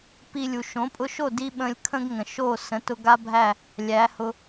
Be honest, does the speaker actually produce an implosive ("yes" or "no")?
yes